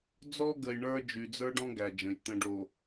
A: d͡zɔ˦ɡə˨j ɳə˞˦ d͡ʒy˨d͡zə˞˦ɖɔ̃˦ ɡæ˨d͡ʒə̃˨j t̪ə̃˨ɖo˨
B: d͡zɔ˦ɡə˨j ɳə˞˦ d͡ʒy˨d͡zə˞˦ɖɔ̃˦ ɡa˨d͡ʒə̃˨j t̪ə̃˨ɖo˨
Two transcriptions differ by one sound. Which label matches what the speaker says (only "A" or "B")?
A